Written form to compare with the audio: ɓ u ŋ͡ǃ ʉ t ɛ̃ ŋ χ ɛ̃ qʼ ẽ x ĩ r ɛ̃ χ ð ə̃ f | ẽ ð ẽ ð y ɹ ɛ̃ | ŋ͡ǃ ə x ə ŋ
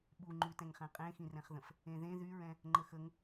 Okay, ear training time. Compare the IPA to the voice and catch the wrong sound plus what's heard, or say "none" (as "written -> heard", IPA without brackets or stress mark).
none